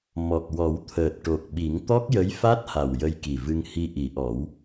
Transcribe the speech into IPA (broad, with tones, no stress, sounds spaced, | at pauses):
m ɔ˨˩ k̚ w ɔ˨˩˦ w t̪ʰ əː˨˩ t̚ ʈ o˨˩ k̚ ɓ i˨˩˦ ŋ t̪ ɔ˦˥ k̚ j ə˧˥ j f a˦˥ t̚ h a˨˩ w j ə˧ j k i˨˩ v ɨ˧ ŋ h i˧ ʔ i˨˩˦ ʔ ɔ˨˩˦ w